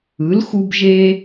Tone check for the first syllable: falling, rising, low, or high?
rising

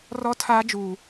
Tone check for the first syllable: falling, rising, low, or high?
high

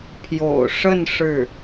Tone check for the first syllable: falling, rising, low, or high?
low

